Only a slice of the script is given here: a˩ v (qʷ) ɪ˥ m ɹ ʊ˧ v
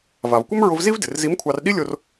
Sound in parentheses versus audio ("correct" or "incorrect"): incorrect